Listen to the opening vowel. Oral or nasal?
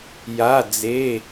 oral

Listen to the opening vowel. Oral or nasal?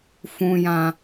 nasal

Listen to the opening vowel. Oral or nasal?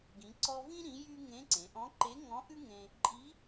nasal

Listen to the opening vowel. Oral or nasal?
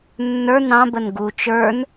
oral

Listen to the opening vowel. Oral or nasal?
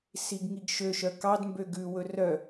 oral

